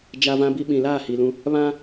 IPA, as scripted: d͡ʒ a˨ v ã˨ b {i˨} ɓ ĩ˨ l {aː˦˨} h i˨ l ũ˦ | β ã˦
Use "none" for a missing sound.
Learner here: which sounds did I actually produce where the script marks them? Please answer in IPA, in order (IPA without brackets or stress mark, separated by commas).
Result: i˨, aː˦˨